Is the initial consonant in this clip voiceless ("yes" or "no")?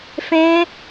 yes